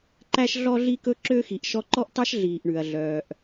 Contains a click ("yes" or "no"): yes